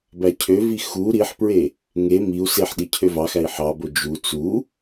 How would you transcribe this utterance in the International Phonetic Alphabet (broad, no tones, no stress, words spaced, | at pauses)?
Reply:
bæcʰøvi xu ɾiħpɹe | ŋe miu̯ seħɗi cʰøvɑxæi̯ ħɑbo d͡ʒu t͡su